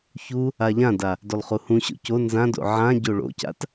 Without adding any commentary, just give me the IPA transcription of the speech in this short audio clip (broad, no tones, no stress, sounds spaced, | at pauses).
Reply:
ç u | a ʎ ã d a | d ɵ lˠ χ u h ũ ɕ o̰ c o n z ã d o̰ ʕ ã ɟ o ɭ o̰ c a̰ t